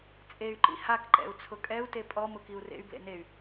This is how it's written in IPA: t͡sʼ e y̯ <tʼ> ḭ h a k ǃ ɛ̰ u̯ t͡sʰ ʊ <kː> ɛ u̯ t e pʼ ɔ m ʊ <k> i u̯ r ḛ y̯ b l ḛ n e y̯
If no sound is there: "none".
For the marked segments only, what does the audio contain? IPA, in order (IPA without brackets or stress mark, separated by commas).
ǃ, kʼ, k